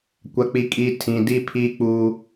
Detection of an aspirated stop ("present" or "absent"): present